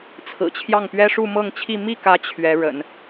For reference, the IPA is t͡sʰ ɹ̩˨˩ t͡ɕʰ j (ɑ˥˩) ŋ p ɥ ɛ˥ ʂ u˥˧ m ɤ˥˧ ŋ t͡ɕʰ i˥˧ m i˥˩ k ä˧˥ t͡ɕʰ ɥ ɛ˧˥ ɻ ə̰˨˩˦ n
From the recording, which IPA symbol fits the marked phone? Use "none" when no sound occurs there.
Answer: ɑ˥˩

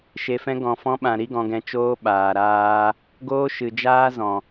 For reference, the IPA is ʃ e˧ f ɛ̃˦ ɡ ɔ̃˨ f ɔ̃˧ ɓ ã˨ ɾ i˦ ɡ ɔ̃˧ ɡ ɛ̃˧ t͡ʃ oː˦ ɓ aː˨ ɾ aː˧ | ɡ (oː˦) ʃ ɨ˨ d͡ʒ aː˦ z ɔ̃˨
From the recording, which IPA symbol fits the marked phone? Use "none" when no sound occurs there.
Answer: oː˦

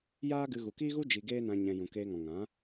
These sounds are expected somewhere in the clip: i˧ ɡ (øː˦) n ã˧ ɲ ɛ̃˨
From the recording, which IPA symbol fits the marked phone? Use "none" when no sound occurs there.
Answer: eː˦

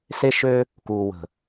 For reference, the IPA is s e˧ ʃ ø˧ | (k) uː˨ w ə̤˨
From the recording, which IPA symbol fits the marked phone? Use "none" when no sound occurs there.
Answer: k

